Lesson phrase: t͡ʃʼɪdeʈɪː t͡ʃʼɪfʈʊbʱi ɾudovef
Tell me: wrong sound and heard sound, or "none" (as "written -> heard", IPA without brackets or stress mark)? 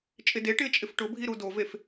none